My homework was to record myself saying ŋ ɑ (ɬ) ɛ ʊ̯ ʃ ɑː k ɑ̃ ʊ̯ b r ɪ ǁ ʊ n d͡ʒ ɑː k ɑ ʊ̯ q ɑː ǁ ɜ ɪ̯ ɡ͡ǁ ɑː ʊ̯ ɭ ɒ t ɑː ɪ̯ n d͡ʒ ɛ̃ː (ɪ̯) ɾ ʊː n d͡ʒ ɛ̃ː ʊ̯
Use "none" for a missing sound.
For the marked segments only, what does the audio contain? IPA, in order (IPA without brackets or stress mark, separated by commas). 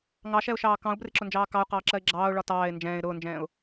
ʃ, ɪ̯